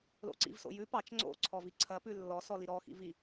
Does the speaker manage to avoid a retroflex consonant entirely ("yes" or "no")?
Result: yes